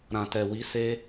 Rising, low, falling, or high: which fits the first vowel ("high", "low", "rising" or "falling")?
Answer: low